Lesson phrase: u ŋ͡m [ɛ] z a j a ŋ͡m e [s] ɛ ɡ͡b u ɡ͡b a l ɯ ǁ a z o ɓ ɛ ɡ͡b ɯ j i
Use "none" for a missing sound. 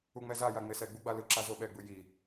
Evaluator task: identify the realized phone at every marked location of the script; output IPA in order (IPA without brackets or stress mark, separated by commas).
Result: ɛ, s